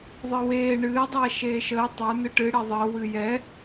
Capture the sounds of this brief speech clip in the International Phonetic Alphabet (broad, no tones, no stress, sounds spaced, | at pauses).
ðˤ ɨ w eː ɳ ɨː dˤ ɛː ʃ eː ʃ əː tˤ ə˞ n ɨ ʈ ɨ ɽ e ðˤ əː w ɨ j ɛ